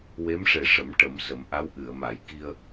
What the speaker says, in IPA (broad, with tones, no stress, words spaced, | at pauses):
we˧˥mʂe˨˩ʂə˨˩˦m ʈə˨˩˦msə˨˩˦mʔa˧˥w ʔɨ˨˩˨ə̯ma˨˩˦j ki˧ə̯